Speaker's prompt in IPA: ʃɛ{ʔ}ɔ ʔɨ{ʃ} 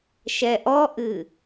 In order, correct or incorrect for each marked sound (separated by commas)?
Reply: correct, incorrect